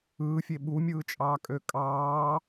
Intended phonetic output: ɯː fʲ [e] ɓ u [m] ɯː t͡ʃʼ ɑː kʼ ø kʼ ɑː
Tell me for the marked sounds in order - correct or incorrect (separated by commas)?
correct, incorrect